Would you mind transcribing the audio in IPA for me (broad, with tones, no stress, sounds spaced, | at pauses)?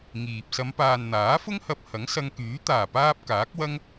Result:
ŋ iː˨ p̚ s ɐ˨˧ m p aː˨ n n̪ aː˨˥ f ʊ˥ ŋ h ɐ˧ p̚ h ɐ˨˥ ŋ s ɐ˧ ŋ k yː˨˥ t̪ aː˨˩ p aː˧ p̚ k aː˨˥ k̚ w ɐ˥ ŋ